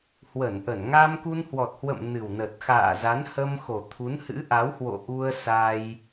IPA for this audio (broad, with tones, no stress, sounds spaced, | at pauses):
h w ə˧˩ n ʔ ə˧˩ n ŋ a˧ m k u˧ n h w ɔ˨˩ t̚ h w ə̰˧˨ m n ɨ˨˩ w n ə˨˩ t̚ x a̰ː˧˨ z a˨˦ n h ə˧ m x o˨˩ t̪ʰ u˨˦ n h ɨ̰˧˥ ʔ a˨˦ w h w o̰˧˨ ʔ u˧ ə̯ s a˧ j